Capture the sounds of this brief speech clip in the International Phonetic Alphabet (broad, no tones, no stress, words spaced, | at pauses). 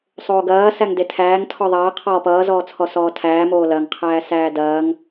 sˤoːɡɐː sæŋdetʰæːŋ tʰɔðˤɐː qʰɔːpʌːzɔːt͡sʰɔ sɔːtʰæːmoː lɐŋqʰæːsæː dɐːŋ